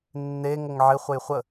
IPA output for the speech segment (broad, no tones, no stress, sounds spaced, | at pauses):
nː e ŋ ə ŋ ʕ ɪ χʷ ə j χʷ ə